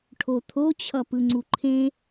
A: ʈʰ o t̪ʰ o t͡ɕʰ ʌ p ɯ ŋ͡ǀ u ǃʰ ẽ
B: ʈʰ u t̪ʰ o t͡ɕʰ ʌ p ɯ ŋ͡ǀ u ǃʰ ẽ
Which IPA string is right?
A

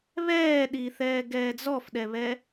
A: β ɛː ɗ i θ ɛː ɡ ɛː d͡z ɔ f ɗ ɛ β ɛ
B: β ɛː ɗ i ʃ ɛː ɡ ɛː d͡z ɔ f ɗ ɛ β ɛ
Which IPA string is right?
A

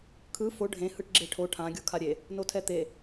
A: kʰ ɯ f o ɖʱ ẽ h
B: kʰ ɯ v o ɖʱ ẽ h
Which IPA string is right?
A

